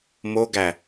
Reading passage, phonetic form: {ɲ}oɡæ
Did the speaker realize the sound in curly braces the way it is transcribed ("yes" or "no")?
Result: no